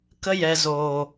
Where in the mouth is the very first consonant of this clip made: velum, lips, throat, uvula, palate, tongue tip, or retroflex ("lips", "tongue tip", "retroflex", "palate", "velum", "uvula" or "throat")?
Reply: velum